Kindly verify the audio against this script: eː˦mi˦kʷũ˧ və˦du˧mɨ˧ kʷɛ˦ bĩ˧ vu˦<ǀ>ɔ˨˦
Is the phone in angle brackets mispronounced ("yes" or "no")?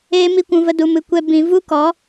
yes